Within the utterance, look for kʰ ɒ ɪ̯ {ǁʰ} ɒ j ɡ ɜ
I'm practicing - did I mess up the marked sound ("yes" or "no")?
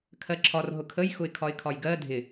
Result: yes